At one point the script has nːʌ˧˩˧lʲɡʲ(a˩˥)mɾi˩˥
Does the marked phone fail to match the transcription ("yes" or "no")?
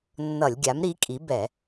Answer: no